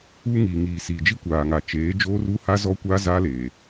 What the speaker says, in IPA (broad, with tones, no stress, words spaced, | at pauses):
uː˦ŋiː˨ŋiː˨ siː˨d͡ʒi˦ kʷaː˨ŋa˨t͡ʃeː˨˦ d͡ʒoː˦ru˦ha˦ zɔ˦kʷa˦ za˦leː˨